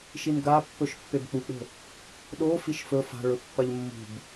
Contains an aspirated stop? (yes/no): no